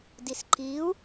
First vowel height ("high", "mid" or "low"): high